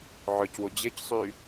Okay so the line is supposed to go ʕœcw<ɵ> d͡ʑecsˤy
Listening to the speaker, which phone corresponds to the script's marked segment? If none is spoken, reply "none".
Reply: ʊ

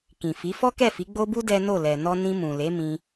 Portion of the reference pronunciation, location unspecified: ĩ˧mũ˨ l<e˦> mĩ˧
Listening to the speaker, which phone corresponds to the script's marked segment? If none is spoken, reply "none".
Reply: e˨˦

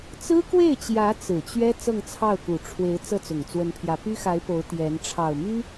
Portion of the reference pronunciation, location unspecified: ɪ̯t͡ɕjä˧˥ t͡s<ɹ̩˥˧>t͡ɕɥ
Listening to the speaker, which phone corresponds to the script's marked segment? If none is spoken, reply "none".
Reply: ɹ̩˨˩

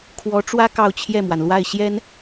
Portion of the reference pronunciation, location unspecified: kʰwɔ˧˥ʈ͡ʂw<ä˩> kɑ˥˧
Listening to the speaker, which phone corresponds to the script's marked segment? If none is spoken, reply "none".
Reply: ä˥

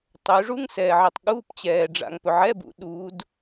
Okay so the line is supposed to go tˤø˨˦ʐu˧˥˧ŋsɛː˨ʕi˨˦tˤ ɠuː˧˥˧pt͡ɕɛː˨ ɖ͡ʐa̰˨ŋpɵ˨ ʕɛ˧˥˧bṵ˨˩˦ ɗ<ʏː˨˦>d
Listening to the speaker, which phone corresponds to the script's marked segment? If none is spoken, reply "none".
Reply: uː˨˦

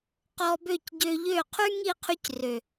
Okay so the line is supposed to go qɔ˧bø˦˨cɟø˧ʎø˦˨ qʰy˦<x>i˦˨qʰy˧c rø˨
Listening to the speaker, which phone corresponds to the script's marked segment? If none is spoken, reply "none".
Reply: ŋ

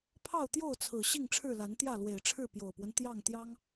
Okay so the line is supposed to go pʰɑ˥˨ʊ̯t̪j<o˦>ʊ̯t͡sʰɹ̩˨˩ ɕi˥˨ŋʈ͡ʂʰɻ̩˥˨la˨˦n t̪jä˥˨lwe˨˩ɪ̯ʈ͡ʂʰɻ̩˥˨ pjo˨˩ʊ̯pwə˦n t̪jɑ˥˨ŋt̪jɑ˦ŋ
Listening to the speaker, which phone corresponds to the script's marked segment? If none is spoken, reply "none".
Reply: o˥˨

